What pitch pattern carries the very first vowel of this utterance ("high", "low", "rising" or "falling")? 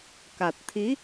low